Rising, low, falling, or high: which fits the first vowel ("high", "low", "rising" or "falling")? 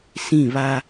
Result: falling